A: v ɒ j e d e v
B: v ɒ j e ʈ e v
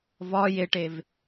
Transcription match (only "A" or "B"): B